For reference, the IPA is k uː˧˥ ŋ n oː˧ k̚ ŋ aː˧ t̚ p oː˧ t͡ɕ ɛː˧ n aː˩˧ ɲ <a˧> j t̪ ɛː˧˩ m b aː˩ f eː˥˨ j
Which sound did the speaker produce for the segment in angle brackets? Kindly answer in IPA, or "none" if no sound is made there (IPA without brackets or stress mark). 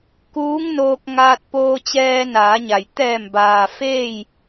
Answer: a˩